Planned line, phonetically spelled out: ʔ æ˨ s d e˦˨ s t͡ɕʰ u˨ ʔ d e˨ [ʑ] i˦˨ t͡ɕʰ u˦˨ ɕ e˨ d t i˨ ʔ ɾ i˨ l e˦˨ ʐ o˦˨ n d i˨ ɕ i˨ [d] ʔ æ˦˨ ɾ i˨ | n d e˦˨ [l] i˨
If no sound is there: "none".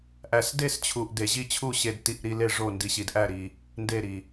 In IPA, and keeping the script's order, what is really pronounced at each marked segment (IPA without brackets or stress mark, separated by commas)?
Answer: ʑ, d, ɾ